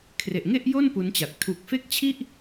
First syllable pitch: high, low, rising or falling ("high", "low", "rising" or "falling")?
low